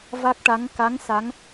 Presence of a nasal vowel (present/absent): absent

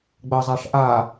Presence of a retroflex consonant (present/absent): present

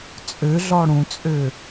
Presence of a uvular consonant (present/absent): absent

